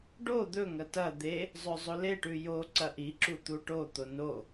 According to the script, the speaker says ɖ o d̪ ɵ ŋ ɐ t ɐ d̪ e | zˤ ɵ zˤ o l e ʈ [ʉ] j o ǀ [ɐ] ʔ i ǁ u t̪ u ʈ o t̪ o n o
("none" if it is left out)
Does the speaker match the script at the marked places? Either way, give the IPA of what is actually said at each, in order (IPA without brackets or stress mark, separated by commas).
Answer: ʉ, ɐ